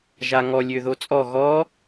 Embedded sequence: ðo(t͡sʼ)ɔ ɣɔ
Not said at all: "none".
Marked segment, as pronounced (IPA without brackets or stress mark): t͡sʼ